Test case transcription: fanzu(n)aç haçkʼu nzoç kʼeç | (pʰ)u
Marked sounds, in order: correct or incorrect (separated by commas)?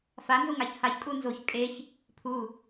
incorrect, correct